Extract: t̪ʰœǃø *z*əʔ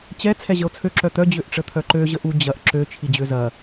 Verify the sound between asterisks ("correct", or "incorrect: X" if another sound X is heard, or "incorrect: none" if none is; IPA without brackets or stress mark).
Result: incorrect: ʑ